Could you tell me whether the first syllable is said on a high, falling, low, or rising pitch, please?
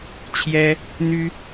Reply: high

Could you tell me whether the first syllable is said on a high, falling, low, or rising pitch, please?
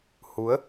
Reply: rising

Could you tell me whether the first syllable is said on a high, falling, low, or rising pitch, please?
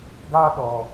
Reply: high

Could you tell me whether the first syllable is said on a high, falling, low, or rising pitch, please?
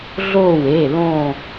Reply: falling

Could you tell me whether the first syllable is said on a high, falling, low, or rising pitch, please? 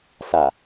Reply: low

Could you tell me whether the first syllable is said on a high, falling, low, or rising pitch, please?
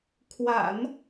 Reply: low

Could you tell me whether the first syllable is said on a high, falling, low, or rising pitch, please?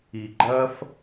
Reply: low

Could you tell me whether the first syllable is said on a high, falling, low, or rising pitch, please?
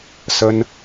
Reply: high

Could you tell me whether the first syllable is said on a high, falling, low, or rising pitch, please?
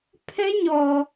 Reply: high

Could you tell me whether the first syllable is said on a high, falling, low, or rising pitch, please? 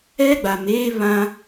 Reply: high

